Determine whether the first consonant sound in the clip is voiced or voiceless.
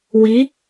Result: voiced